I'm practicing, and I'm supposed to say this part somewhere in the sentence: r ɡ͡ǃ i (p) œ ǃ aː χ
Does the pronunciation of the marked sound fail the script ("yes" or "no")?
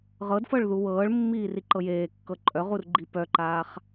no